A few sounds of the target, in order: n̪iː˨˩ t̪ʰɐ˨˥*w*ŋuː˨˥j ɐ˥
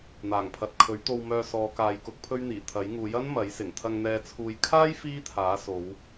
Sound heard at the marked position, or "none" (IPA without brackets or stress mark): j